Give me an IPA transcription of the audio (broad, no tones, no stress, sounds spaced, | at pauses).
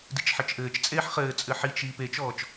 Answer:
d i t͡ʃ ħ ɘ t͡ʃ ʔ ɘː t͡ʃ t͡sʼ eː ħ χ ɘː t͡sʼ ɘ ħ i t͡ʃ iː p e t͡ʃ ɔː t͡ʃ